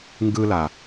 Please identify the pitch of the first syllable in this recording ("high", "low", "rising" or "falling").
high